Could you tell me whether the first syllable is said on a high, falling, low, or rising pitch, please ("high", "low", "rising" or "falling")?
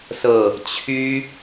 falling